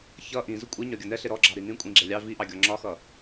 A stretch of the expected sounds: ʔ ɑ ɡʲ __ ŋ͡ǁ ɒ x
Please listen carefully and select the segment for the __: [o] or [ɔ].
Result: ɔ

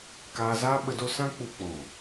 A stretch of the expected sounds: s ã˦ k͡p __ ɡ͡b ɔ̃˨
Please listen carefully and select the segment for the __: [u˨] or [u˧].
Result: u˧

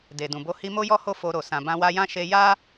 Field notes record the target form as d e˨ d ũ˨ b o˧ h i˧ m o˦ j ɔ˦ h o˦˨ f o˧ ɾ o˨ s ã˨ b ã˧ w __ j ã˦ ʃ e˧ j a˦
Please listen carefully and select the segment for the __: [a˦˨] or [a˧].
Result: a˧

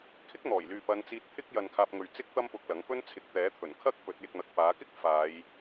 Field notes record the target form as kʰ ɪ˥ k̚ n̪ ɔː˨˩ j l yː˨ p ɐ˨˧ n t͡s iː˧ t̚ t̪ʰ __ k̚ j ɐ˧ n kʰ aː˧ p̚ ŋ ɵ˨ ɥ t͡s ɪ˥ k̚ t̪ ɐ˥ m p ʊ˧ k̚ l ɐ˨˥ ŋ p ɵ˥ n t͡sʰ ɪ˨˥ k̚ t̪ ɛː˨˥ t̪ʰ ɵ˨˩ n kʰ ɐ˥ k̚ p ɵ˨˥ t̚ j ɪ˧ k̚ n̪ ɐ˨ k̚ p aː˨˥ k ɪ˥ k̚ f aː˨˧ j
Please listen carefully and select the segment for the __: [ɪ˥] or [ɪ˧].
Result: ɪ˥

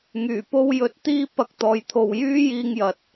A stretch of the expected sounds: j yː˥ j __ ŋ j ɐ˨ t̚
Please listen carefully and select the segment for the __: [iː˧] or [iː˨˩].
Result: iː˧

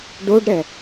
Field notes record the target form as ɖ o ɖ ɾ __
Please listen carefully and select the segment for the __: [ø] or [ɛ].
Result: ɛ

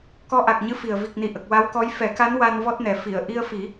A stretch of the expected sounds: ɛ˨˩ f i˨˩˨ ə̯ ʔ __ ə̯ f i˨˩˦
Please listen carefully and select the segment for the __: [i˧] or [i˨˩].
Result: i˧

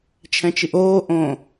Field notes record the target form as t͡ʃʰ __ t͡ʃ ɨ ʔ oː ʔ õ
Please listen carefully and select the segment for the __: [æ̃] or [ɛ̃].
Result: ɛ̃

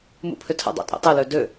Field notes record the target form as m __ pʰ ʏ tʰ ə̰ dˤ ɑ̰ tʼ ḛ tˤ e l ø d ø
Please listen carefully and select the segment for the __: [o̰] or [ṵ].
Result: ṵ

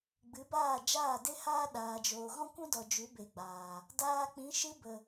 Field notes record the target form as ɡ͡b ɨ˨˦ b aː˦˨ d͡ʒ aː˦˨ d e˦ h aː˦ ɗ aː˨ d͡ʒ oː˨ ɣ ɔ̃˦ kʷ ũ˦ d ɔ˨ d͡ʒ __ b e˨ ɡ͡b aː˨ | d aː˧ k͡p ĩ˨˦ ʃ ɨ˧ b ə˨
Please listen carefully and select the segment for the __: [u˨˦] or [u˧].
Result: u˨˦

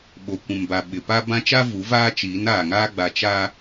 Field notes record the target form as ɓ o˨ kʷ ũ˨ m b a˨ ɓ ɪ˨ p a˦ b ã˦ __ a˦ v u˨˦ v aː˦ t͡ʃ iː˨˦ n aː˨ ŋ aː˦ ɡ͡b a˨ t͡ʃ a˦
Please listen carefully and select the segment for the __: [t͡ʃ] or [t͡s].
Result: t͡ʃ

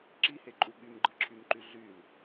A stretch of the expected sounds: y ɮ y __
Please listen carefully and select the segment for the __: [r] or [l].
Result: l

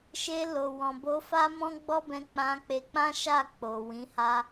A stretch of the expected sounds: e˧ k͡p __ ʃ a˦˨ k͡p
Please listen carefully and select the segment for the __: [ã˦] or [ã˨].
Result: ã˦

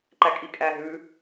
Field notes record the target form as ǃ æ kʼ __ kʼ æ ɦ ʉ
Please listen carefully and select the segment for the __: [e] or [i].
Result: i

